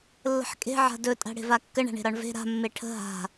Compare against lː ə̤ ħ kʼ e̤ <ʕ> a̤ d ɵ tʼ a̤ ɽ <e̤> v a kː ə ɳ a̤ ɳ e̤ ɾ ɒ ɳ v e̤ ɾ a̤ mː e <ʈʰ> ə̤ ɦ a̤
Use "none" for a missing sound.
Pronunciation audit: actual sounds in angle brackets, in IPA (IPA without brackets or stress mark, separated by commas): ʕ, e̤, ʈʰ